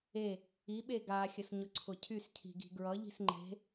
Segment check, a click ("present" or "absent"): present